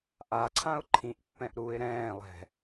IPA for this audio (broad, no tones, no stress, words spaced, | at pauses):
ʔaǀʰãʊ̯ ǃʰĩʔpːɛ̃ʔ ɾuɪ̯ ɾɛ̃ːlˠɛ̤